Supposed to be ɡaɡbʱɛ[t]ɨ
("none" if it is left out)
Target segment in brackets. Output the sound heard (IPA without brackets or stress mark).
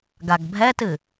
t